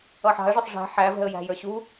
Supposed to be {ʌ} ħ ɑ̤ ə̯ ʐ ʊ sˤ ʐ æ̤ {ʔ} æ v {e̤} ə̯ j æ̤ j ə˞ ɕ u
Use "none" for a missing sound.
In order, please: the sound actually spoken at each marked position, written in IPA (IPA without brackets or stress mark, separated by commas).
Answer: ʌ, ħ, ɛ̤